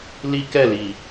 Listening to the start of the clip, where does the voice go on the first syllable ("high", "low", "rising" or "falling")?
high